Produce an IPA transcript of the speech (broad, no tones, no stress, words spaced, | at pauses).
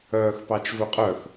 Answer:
œːxpɑt͡ʃvɵqʼœx